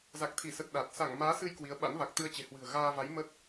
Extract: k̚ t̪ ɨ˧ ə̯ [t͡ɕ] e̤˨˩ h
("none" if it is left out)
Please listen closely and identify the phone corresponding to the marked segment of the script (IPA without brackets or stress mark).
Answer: t͡ɕ